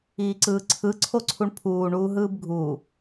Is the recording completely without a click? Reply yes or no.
no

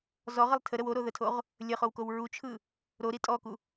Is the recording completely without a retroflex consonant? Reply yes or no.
yes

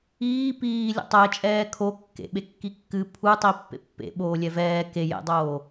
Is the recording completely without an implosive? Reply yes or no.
no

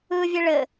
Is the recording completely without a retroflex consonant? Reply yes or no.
no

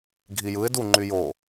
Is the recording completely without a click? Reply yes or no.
no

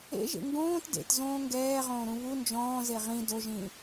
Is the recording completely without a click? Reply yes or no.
yes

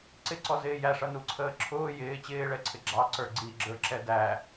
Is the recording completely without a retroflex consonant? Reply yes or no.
no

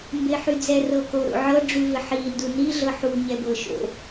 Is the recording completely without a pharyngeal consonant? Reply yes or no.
no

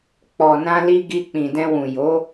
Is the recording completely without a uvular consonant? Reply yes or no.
yes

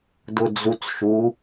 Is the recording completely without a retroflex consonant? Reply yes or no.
yes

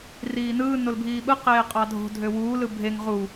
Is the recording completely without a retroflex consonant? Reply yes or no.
yes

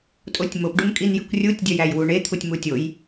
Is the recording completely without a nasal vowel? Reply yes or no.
yes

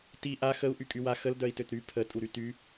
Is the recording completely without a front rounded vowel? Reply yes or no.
no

